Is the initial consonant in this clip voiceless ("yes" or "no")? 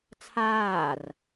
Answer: yes